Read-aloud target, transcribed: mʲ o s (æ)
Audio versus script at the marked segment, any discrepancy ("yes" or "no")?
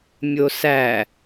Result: no